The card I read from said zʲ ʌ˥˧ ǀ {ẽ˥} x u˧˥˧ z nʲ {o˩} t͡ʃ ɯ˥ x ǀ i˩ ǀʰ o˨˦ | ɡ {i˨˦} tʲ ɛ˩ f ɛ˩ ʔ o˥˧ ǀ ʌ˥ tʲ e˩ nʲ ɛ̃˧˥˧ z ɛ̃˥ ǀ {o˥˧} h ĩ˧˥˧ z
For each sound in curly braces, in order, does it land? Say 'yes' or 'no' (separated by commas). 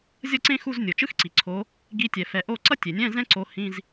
yes, yes, yes, no